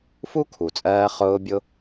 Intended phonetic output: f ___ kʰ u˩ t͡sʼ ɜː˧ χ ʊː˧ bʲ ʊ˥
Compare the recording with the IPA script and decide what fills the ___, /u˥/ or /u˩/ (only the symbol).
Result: u˥